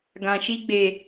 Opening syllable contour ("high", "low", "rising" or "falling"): low